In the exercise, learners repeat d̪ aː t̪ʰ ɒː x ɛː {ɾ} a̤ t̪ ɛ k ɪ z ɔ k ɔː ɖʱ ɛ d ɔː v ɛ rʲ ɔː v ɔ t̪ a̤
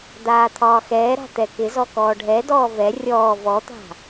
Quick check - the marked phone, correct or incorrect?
correct